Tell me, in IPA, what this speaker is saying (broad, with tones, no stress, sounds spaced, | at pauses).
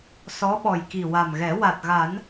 s ɔ˧˥ ɓ ɔ˨˩ j k i˨˩ w a˨˩ m ɣ ɛ˨˩˦ w a˨˩ t̚ ɣ a˨˩˦ n